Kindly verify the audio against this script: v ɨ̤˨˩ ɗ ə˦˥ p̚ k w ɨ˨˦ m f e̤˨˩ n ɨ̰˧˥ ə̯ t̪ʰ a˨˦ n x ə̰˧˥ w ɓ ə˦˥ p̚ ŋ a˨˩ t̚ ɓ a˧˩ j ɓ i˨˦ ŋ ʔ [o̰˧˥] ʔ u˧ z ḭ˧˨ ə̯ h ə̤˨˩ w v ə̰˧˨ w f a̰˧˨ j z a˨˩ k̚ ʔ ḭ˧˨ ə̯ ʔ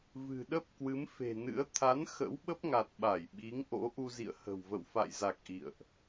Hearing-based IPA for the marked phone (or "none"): o̰˧˥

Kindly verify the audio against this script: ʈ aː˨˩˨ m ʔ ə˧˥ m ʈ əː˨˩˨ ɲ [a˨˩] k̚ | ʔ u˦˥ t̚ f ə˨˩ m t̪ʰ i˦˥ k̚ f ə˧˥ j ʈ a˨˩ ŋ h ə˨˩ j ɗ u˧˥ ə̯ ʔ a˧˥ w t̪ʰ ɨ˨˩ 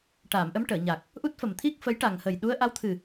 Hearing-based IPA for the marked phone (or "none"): a˨˩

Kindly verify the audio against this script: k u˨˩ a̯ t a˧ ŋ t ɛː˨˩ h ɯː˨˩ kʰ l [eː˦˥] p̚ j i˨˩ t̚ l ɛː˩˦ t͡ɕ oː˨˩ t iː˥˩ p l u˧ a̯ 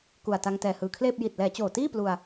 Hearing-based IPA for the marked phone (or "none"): eː˥˩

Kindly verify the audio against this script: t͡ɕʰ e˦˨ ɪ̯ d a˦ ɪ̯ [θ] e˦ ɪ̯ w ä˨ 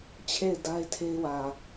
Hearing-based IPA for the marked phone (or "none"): tʰ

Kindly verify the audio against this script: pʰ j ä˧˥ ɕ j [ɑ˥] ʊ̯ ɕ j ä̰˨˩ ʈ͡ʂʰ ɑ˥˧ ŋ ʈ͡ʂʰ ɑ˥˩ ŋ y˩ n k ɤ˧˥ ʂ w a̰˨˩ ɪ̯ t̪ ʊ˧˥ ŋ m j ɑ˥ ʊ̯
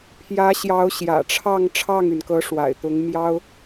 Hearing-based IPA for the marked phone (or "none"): ɑ˧˥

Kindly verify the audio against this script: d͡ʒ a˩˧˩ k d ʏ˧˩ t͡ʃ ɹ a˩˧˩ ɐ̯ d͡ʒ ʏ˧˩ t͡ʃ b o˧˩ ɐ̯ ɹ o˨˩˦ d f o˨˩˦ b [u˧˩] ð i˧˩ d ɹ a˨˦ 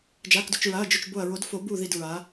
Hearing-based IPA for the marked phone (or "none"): u˧˩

